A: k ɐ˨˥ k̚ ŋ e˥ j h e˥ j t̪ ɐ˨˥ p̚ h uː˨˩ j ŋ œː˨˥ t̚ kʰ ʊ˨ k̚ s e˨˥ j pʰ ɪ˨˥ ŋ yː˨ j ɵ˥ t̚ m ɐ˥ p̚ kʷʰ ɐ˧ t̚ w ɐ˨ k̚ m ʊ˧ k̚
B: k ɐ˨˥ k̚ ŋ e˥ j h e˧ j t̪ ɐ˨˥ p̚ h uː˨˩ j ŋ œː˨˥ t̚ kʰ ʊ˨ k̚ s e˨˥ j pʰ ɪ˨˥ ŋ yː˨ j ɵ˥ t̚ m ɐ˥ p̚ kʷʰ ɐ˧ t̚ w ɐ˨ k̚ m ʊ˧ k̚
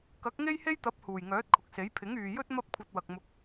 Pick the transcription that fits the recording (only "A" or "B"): A